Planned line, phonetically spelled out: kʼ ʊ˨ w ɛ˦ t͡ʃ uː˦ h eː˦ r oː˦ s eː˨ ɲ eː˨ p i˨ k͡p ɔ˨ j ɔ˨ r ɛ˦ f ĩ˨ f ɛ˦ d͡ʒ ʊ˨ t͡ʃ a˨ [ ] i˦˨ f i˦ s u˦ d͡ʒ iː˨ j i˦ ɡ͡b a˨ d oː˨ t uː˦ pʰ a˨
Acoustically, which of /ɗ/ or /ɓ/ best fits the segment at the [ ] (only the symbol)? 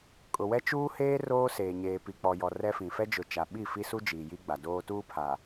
ɓ